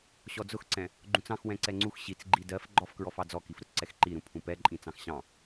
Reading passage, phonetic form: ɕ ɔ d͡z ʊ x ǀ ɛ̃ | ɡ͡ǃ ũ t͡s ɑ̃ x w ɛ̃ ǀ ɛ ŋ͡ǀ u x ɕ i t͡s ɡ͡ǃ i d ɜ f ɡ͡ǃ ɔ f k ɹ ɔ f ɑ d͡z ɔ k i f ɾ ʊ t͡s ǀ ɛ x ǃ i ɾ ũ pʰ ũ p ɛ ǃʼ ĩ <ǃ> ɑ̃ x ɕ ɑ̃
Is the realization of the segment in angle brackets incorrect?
yes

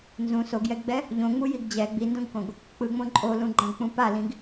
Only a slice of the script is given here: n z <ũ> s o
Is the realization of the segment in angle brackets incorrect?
no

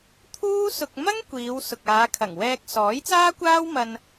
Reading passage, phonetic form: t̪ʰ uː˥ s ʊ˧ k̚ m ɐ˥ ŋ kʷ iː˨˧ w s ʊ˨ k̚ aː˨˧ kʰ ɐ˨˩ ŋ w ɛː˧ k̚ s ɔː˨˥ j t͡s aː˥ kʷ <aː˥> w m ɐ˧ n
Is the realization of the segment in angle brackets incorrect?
no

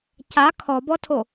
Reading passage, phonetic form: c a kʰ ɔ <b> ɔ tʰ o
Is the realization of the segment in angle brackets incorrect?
no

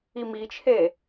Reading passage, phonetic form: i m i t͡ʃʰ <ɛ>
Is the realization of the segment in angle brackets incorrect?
yes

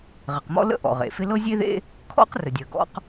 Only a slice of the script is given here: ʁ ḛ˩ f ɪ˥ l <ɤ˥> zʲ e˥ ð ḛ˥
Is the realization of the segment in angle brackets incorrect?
no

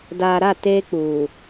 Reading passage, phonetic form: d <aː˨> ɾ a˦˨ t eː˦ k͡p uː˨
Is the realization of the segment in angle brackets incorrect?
no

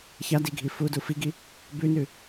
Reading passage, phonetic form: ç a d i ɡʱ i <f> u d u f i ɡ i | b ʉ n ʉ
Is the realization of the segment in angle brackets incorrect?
no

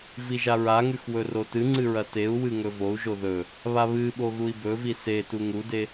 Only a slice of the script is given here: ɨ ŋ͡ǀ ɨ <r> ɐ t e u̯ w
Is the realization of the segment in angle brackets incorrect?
yes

